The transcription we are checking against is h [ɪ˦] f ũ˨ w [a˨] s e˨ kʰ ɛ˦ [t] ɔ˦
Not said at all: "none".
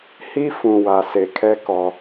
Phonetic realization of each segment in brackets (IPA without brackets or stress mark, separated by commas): i˦, a˨, k